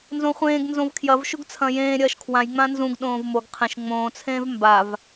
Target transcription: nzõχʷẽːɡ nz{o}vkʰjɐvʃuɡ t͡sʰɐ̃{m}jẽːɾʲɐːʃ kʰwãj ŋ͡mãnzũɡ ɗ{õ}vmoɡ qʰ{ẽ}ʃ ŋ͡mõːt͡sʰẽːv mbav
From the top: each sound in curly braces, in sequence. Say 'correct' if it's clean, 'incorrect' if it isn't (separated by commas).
incorrect, incorrect, incorrect, correct